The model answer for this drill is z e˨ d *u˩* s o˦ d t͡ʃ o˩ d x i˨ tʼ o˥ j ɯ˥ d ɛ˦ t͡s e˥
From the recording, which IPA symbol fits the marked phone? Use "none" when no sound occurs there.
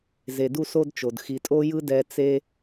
u˦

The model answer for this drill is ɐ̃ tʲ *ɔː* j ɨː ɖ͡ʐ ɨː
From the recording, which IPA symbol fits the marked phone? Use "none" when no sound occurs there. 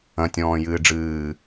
ɔ̃ː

